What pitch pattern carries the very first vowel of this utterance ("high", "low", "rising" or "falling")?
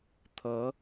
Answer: rising